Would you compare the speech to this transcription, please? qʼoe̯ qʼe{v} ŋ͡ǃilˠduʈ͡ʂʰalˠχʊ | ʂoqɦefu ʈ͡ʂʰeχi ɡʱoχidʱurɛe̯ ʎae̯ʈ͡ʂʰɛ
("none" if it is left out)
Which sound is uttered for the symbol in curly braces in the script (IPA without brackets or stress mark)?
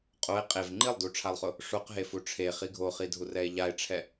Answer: v